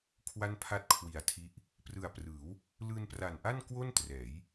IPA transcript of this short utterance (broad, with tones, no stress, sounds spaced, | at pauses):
kʰ w a˥˩ n pʰ a˥˩ t̚ kʰ w i˨˩ a̯ tʰ i˦˥ ʔ | p r ɯ˨˩ a̯ p r ɯː˩˦ w | l ɯː˧ n p r a˨˩ n ʔ a˥˩ n k w o˥˩ n t r ɛː˩˦ j